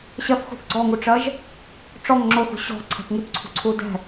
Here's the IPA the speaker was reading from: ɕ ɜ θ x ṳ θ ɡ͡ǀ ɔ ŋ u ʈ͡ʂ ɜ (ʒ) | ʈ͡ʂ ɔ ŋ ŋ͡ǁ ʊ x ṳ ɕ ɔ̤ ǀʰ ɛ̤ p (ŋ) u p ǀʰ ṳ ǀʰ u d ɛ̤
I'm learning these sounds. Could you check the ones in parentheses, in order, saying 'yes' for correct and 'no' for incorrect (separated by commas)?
yes, yes